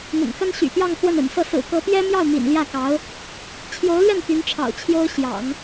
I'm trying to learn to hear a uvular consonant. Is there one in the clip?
no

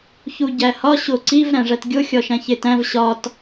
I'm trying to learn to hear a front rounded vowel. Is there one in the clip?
no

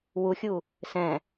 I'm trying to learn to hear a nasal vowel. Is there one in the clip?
yes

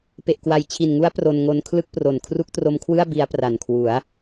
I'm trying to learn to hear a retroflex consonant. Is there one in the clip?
no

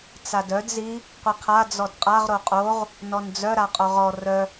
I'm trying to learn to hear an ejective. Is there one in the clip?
yes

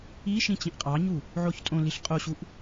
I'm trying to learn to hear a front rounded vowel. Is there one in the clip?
no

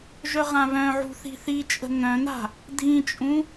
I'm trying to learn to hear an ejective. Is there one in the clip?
yes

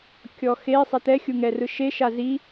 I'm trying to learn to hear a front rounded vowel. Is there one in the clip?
no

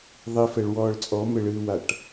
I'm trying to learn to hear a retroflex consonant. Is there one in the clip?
yes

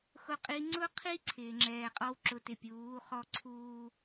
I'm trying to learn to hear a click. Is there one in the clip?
yes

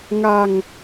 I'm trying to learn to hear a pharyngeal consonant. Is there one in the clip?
no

